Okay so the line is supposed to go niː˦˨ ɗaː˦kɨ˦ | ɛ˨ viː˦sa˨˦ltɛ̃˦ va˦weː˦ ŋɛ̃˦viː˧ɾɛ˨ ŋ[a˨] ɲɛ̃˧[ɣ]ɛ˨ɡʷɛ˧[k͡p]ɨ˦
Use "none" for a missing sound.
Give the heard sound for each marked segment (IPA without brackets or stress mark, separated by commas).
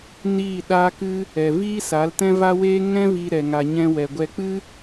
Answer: a˨, w, k͡p